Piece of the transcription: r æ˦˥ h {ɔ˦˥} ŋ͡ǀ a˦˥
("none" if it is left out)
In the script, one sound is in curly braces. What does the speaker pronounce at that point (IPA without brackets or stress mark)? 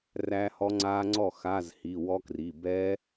ɔ˦˥